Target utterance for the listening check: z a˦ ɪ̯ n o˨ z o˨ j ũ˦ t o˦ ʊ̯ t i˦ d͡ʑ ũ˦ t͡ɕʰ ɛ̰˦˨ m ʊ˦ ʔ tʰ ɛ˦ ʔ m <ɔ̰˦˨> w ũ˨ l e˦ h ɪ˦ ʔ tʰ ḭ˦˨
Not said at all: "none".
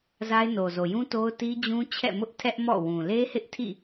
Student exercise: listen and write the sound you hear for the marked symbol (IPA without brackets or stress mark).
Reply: ɔ̰˦˨